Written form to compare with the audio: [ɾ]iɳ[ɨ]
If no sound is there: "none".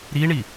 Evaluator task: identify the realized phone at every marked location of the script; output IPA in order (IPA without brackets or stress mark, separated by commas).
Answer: ɾ, i